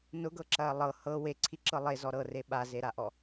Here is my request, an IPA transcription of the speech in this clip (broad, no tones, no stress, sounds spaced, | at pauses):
n ʊ ɡ ɤ ǁ ɐː lˠ ɤ h ɤ w e ǀʰ i ǁ ɤ lˠ e z ɔ ɾ ɤ r e ɓ a z e ɾ a ʔ ɔ